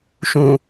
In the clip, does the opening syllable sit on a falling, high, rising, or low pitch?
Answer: low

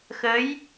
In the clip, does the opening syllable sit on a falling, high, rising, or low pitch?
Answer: rising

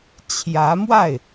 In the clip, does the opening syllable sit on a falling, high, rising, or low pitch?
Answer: rising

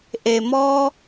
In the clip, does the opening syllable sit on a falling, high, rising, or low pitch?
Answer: low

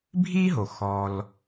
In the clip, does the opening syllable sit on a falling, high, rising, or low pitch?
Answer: high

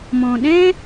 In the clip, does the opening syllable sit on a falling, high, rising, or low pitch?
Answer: low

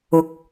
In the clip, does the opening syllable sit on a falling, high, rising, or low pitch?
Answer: rising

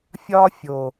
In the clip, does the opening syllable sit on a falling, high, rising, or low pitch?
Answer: high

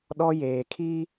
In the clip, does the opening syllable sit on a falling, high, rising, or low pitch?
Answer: high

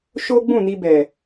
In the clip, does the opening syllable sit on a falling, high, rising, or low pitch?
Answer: high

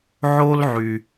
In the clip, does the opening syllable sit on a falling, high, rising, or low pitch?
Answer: high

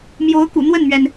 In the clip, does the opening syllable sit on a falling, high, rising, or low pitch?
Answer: rising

